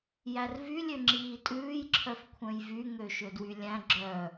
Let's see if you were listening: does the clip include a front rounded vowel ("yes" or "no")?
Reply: yes